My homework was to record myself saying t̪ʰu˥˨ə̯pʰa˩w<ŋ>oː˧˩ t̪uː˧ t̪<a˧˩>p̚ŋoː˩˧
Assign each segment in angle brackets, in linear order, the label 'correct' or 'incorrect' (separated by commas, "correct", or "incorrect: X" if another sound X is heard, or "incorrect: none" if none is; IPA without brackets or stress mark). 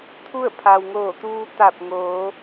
correct, correct